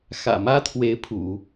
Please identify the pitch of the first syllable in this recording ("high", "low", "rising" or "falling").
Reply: low